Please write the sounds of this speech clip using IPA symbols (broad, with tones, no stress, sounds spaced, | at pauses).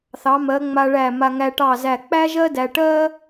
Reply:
θ ɑ˩˧ m ɜ˩˧ ŋ͡m a˧ ɭ æ˧˩ m a˧ ŋ æ˧ ʈ ɑ˧˩ z æ˧˩ k͡p æ˥ ʒ ɜ˥ d æ˧ ʈ ɜ˥